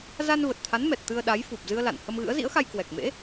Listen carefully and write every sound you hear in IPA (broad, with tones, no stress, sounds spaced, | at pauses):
z a˧ n v ə˨˩ t̚ t̪ʰ a˨˦ n m ɛ˨˩ t̚ t̪ ɨ˧ ə̯ ɗ a˨˦ j f u˨˩ p̚ z ɨ˧ ə̯ l a̰˧˨ n h ə˧ m ɣ ɨ̰˧˥ ə̯ z ḭ˧˥ ə̯ x a˧ j k w ɛ˨˩ k̚ m ḛ˧˥